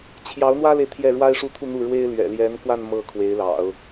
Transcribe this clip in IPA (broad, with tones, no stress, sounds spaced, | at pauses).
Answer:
t͡ɕʰ j ɑ˧˥ ʊ̯ n̪ w ä˥ l e˨ ɪ̯ t̪ʰ j ɛ˥˩ ɻ w a˥ ɪ̯ ʂ u˥ t̪ʰ u˥˧ n̪ u˥˩ ɻ w e˥ ɪ̯ l ɥ ɛ̰˨˩ l j ɛ˧˥ n k w a˥˧ n m ɤ˥˩ kʰ w e˧˥ ɪ̯ l ɑ̰˨˩˦ ʊ̯